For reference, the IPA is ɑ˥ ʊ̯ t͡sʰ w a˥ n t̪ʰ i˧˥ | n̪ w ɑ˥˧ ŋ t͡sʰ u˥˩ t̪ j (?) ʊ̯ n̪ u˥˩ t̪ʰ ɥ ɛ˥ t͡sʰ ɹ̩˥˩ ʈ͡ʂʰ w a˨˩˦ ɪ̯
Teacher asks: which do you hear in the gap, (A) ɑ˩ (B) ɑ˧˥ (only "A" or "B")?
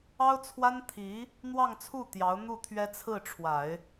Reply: B